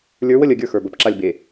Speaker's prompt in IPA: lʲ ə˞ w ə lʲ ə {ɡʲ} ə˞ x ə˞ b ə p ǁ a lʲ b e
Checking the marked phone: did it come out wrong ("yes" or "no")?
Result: no